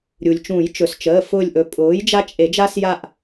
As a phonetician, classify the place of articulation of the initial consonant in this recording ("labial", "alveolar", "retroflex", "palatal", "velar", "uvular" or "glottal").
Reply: alveolar